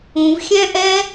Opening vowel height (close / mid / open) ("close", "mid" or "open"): close